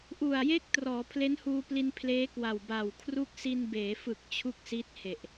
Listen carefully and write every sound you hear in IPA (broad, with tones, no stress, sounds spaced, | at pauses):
ʔ u˨˩ a̯ j e˥˩ k̚ t r ɔː˩˦ pʰ l e˦˥ n h uː˧ p l i˧ n pʰ l eː˦˥ k w a˨˩ w b a˨˩ w kʰ r u˦˥ k̚ s i˧ n b eː˩˦ f ɯ˨˩ k̚ t͡ɕʰ u˥˩ k̚ s i˦˥ t̚ h e˨˩ ʔ